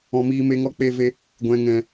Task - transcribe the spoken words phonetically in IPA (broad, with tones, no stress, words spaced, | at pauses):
ɔ̃˧miː˧me˧ŋɔ˦ k͡pe˦ve˦ | ɡʷɛ̃˧ŋɛ̃˧